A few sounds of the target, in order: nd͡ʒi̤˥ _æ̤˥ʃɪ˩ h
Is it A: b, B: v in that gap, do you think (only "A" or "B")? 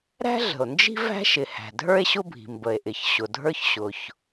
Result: B